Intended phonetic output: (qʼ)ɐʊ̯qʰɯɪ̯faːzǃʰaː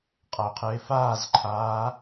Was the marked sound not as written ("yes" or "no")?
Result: no